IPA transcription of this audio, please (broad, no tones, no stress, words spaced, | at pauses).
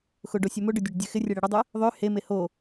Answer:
xʊɖo sʲømʊɖʏ dʲøɖdʲøxɪrʲe ɽeɽʏdˤʏ | ðˤø heme ho